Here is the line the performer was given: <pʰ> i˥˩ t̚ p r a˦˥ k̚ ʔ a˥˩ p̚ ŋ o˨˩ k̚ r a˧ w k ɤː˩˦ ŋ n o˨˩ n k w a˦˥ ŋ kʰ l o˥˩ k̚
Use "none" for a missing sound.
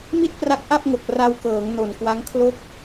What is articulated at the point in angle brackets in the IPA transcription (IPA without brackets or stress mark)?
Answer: m